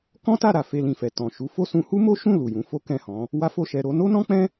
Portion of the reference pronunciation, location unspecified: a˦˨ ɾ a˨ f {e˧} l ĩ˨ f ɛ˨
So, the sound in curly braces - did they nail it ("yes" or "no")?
yes